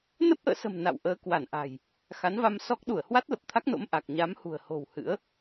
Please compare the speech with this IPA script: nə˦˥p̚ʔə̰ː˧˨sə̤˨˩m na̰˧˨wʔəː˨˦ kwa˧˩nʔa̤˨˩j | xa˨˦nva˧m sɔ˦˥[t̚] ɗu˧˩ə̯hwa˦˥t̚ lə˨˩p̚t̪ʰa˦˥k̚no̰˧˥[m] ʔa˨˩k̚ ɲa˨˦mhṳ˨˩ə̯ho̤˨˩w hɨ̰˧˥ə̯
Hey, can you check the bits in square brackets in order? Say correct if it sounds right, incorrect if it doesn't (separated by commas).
incorrect, correct